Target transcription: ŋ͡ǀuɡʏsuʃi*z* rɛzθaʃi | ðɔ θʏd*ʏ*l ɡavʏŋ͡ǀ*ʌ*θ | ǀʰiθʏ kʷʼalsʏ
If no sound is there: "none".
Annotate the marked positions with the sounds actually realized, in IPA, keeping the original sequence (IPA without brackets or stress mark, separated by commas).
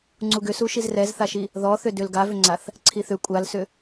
z, ʏ, a